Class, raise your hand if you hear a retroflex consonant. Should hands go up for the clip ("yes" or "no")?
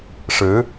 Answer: yes